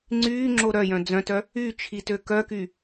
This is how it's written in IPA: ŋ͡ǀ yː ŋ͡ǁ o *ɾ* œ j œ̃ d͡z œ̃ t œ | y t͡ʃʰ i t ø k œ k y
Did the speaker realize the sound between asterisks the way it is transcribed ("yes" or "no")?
yes